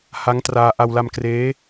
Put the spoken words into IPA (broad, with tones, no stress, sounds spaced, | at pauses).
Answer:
h a˦˥ ŋ t r aː˧ ʔ a˧ w l a˧ m k r eː˦˥